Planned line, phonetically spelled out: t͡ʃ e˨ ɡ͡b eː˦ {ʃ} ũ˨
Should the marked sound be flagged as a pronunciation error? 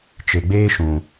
no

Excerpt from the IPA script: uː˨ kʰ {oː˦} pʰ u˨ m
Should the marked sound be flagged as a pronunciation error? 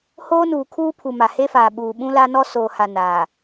yes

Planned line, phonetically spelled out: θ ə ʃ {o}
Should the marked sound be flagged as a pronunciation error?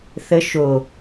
no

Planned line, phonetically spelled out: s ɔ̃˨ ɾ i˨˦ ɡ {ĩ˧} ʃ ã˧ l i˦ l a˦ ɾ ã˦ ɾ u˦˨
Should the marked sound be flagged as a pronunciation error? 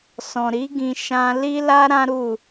no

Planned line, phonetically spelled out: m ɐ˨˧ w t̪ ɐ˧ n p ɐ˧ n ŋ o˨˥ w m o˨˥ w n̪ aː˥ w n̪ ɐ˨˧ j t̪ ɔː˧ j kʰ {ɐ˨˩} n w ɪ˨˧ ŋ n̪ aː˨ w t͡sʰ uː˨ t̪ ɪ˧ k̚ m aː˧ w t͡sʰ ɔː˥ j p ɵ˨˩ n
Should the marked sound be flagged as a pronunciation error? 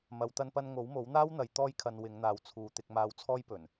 yes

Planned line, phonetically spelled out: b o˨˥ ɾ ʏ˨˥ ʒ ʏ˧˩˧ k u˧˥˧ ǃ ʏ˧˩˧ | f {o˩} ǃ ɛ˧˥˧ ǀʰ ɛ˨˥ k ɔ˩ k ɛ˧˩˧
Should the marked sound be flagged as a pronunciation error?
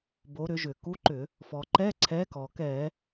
yes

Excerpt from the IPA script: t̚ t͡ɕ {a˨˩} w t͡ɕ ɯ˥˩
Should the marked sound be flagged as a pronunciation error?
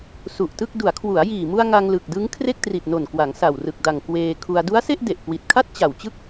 no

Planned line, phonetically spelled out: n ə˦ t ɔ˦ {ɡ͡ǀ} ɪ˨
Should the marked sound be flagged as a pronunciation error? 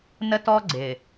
no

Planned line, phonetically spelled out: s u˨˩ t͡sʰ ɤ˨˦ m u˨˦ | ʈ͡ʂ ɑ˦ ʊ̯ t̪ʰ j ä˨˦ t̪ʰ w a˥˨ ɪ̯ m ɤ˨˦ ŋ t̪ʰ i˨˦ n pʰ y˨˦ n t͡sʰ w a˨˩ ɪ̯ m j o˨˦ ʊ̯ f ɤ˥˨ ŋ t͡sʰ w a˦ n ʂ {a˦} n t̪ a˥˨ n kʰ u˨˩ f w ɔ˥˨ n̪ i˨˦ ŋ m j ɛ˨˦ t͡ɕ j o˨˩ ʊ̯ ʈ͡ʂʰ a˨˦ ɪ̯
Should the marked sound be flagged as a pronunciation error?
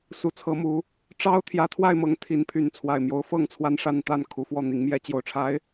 yes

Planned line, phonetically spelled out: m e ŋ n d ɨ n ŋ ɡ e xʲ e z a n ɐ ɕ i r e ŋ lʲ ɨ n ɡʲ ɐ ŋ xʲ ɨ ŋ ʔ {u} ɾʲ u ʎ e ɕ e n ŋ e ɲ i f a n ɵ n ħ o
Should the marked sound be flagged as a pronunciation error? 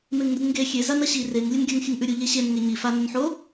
yes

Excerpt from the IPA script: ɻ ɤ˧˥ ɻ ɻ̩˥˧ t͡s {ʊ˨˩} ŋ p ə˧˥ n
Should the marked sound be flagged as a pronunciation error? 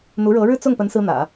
yes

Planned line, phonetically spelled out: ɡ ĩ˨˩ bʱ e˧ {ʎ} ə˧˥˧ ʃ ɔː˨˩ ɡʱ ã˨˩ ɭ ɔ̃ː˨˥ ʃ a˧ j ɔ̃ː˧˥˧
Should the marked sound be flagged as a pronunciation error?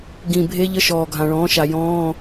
no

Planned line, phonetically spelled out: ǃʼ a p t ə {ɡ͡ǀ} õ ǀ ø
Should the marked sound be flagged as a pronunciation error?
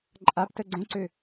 no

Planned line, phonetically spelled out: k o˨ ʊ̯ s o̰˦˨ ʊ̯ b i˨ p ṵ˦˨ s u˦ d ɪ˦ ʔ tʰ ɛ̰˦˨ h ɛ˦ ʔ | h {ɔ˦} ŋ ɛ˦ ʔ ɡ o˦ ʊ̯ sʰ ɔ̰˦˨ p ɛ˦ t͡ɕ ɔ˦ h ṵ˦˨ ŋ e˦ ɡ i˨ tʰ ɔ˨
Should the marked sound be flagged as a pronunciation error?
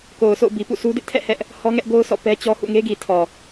no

